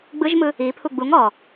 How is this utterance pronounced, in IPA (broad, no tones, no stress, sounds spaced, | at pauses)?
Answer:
ɡ͡b ɯ ʒ m ɯ | i pʰ u ɡ͡b u ŋ ɔ